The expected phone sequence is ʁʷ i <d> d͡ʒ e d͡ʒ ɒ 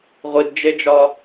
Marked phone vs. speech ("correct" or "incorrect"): correct